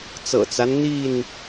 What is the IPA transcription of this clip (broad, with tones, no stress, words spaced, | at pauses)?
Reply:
t͡sɤ̰˨˩t͡sa˦n n̪i˥˨n